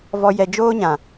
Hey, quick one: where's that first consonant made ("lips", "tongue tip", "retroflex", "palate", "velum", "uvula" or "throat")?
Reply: lips